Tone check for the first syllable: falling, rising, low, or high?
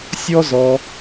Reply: high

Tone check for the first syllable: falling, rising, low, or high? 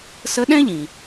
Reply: rising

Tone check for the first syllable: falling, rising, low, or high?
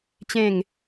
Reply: falling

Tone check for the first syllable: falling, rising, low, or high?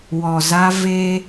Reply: low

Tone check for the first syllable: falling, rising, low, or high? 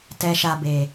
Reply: low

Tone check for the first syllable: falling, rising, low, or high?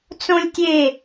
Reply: high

